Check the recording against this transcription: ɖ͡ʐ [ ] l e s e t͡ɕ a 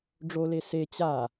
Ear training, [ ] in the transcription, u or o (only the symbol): o